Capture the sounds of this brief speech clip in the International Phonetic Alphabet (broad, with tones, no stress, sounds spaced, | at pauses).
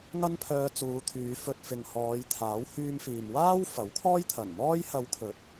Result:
ŋ ɐ˥ n pʰ œː˧ t͡s uː˨˧ t̪ʰ yː˨˧ f ɵ˧ t̚ f ɪ˨ ŋ h ɔː˨˧ j t̪ʰ aː˨˥ w h yː˧ m f iː˨ m w aː˥ w f ɐ˨˥ w kʰ ɔː˥ j t̪ʰ ɐ˨˩ n m ɔː˧ j h ɐ˨˧ w kʰ ɵ˨˥ t̚